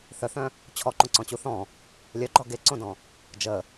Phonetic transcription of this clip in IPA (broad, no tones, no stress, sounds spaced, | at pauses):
θ œ θ œ̃ | t͡ɕʰ ɔ ǃ õ ǀ ɔ̃ t͡ɕ u θ ɔ̃ | lʲ œ ɡ͡ǃ ɔ ɡ e ǀ õ d ɔ̃ | d͡ʒ ə